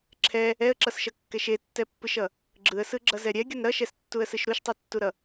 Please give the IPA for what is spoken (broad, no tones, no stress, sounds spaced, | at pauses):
ǁʰ ɛ | ɛ ə̯ ǁ ʌ s ʃ ʌ kː ɛ ʃ e tː ɛ pː ɯ ʃ ʌ | ɡ͡ǁ ɯ ə̯ s ɯ ɡ͡ǁ ʌ z ɛ ɾʲ ɛ ɡʲ ʌ n ɾ ʌ ʃ ɛ s tː u ə̯ s ɯ ʃ ɾ u ʃ tˤ e tː u ɾ ʌ